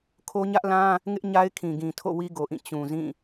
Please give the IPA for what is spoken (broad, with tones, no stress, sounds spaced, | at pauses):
kʰ o˦ ɲ ä˦ ʔ l ã˦ | ŋ ɪ˦ ʔ ɲ a˦ ɪ̯ kʰ ĩ˨ ɡ ĩ˨ tʰ o̰˦˨ w i˦ ɡ o˨ ʔ ĩ˦˨ t͡ɕ ũ˨ z ĩ˦˨